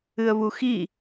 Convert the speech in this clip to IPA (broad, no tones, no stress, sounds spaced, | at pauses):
ɨ ə̯ β u x i